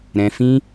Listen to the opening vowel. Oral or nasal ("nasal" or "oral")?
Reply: nasal